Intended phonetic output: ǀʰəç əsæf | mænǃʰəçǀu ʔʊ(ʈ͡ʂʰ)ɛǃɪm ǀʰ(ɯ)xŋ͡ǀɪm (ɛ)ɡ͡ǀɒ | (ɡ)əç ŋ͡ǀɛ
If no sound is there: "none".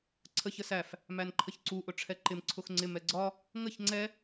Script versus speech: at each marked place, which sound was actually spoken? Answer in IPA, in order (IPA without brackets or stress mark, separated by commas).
ʈ͡ʂʰ, ʊ, ɛ, ŋ